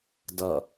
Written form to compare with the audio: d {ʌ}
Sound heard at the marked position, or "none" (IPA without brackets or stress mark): ʌ